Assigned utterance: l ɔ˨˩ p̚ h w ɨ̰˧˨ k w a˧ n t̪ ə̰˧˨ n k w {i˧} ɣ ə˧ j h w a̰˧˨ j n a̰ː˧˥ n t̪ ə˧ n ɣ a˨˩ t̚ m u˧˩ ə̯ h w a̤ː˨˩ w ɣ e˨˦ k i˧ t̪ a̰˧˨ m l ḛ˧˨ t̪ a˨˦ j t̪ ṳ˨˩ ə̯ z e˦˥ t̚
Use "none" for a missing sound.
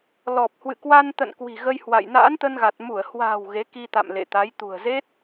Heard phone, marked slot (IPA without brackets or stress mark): i̤˨˩